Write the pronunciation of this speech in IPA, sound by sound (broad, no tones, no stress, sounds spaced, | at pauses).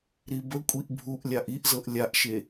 ɾ i b ə kʷʼ i ʔ bʱ u ʔ lʲ a ʔ i ʔ z ɤ ʔ lʲ a ʔ ʃ e